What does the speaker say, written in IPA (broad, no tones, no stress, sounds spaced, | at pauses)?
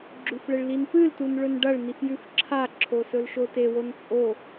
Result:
ɡ͡ǁ ʉ f ɭ e ɭ l i n p ɨ l t u n ɭ ɵ n ɖ ɐ ɭ n i f j ʉ f ǁʰ a ǁʰ o s ɵ l ʃ o t e w o n t͡sʼ o